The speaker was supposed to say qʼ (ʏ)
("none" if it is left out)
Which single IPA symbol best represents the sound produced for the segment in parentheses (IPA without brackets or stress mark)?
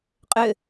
ʏ